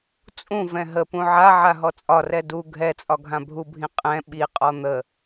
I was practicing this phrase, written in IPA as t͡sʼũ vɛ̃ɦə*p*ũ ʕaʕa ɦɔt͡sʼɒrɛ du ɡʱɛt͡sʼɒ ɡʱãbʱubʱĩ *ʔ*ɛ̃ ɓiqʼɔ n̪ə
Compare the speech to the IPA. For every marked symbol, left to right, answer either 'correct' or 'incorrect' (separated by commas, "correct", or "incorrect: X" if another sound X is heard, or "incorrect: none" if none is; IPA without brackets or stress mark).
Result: correct, incorrect: qʼ